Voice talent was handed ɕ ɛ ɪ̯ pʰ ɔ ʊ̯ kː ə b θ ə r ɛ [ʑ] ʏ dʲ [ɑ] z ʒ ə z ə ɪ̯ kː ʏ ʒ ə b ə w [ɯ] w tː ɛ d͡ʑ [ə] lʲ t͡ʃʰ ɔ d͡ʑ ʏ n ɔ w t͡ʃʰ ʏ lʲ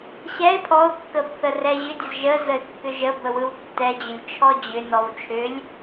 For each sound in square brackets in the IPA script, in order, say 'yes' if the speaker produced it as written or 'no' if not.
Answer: yes, no, yes, no

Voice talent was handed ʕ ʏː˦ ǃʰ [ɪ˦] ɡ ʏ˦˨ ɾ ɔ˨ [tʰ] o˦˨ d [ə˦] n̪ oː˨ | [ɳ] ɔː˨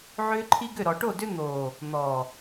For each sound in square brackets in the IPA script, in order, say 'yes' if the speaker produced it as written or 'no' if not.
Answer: no, no, no, no

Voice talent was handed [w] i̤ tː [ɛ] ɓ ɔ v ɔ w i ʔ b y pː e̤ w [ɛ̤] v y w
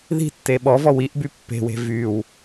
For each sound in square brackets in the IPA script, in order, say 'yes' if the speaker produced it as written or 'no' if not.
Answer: no, no, no

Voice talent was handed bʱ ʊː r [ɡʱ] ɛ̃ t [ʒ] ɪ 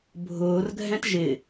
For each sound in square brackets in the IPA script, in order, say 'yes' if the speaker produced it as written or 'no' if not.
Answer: yes, yes

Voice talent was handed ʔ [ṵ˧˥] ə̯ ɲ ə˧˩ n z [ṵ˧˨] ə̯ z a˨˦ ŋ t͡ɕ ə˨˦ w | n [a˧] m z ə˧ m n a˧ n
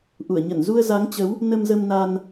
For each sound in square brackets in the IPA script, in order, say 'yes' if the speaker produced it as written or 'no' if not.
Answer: no, no, no

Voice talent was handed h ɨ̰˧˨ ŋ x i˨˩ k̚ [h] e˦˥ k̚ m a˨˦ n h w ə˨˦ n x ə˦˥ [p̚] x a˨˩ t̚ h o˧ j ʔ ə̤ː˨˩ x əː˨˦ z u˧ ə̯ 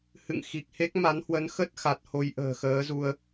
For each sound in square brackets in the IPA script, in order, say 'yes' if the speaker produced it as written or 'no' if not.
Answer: yes, no

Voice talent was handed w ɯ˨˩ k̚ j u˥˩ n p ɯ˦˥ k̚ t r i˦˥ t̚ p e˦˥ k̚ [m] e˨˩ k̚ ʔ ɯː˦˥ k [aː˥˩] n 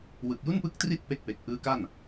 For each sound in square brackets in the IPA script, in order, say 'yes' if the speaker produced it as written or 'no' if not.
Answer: no, no

